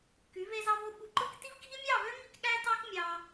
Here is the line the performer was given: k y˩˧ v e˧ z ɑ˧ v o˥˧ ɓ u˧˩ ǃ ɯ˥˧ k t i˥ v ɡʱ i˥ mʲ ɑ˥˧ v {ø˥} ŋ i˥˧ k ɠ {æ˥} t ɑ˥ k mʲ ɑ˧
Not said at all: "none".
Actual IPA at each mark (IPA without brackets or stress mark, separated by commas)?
ø˥, æ˥